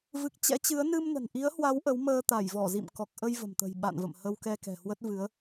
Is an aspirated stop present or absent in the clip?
absent